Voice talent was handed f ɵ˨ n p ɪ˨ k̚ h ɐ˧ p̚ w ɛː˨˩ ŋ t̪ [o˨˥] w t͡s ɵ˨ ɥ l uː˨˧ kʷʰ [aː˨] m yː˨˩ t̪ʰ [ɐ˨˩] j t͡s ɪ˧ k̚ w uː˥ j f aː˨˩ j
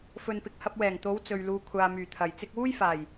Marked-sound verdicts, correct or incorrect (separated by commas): correct, correct, correct